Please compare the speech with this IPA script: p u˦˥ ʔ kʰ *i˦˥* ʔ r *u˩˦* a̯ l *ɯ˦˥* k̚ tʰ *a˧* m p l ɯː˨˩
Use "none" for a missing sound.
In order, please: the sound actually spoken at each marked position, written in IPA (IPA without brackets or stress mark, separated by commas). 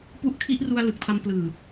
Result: i˦˥, u˧, ɯ˨˩, a˧